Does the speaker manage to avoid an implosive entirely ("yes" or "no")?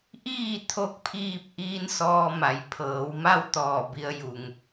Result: yes